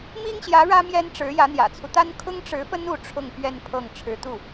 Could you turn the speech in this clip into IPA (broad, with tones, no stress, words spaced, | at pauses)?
mi˥ŋɕjä˧˥ ɻä˥mjɛ˥nʈ͡ʂɻ̩˧˥jä˧˥ n̪jä̰˨˩t͡sʰu˦t̪a˥n kʰʊ˥ŋʈ͡ʂɻ̩˧˥fə˥n u˥˧ʈ͡ʂʰʊ˥˧ŋ pɥɛ˥˧n pʰɤ˥˩ŋ ʈ͡ʂʰɻ̩˧˥t̪u˥˩